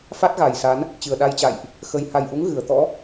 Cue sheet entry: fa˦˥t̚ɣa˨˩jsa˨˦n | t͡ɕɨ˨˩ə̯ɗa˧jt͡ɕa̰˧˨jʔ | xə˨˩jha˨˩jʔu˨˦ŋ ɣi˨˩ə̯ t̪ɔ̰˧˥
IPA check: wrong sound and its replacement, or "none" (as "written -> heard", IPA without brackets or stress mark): i˨˩ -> ɨ˨˩